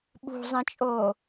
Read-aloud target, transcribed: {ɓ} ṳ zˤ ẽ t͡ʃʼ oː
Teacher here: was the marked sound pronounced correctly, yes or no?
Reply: yes